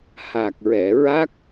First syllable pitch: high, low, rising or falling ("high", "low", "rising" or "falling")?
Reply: low